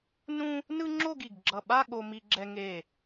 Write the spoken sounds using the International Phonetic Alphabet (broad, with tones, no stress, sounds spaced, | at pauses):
n ũ˥ | n ɯ˥ ŋ͡ǁ o˥˧ ɡ i˧˩ ɡ ɡ͡ǁ ʌ˧˩ ɓ a˥˧ ɠ o˧ m i˧ ɡ͡ǁ ɛ˧ ŋ e˧˩